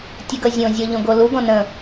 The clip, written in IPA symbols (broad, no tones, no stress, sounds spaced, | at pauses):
tʲ ə ɡ ʌ zʲ õ zʲ ɔ ʎ õ ɡ o l u ɡ ɔ̃ n ə̃